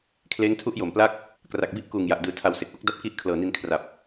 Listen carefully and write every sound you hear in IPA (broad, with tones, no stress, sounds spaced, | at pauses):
kʰ l eː˦˥ ŋ tʰ u˦˥ ʔ j o˨˩ m p l a˥˩ k̚ | k r a˨˩ k̚ b i˦˥ ʔ k uː˨˩ ŋ j a˨˩ ʔ d ɯː˨˩ tʰ a˨˩ w s e˨˩ k̚ ʔ o˥˩ k̚ d a˦˥ p̚ k i˦˥ ʔ kʰ l ɤː˨˩ n i˧ n kʰ r a˨˩ p̚